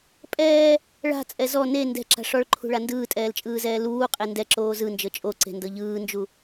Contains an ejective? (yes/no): yes